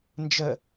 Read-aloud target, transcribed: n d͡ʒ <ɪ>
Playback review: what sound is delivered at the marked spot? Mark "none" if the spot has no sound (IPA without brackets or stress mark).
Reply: ə